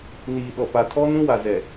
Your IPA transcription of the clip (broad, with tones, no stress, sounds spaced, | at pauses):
n iː˨ ɗ ɔ˨ p a˨ tʰ ɔ˦ n ũ˦ w a˨ z ɛ˨